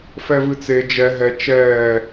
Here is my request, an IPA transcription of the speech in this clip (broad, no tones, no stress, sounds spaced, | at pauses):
f ɛ v ɨ t͡s e d͡ʒ ɛ ɦ ɛ t͡ʃ ɛː